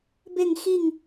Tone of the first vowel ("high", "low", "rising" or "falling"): falling